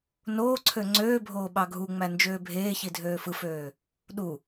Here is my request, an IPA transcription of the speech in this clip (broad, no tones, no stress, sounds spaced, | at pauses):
n oː ǀʰ ø ŋ͡ǀ øː bʱ oː ɓ ɑ ɡʱ u ŋ͡m æ n d͡ʒ øː bʱ eː ç i dʱ øː f ɯ f øː | ɗ u